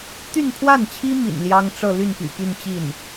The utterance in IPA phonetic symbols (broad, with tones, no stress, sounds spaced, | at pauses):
t̪ y˥˧ n pʰ w a˥˩ n t͡ɕʰ i˥ m ḭ˨˩ n l j ɑ˥ ŋ ʈ͡ʂ ɤ˥˧ l y˥˩ n p y̰˨˩ p y˥˧ n t͡ɕ i˥˩ n